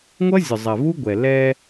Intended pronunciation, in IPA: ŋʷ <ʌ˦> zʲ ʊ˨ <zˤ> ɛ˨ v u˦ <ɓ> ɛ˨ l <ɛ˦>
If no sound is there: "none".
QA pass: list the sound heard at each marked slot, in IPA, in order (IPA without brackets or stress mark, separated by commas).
ʌ˦, zˤ, ɡʷ, ɛ˦